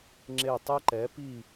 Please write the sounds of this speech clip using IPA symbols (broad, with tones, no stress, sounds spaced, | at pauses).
ŋ͡ǁ e˧˩ tˤ e˥ ǃ ɛ˩˥ p i˥˨